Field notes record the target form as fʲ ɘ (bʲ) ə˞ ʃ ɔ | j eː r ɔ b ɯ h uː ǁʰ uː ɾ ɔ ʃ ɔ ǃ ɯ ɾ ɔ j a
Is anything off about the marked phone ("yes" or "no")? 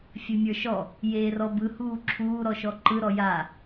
yes